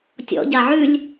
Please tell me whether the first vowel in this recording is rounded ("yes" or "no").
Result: yes